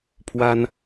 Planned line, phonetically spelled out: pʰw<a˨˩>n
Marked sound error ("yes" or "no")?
yes